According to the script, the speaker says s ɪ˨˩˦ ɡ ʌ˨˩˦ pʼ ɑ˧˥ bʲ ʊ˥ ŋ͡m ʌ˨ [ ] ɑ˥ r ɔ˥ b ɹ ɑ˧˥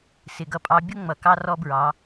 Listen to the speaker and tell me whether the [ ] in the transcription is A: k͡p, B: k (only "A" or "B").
B